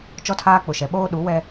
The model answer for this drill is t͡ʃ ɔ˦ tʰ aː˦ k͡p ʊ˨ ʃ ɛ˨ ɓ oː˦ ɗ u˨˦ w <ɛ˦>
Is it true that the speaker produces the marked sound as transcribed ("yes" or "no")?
yes